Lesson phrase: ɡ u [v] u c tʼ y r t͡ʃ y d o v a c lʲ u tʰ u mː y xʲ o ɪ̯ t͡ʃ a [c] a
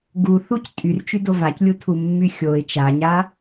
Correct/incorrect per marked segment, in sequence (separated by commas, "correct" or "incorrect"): incorrect, incorrect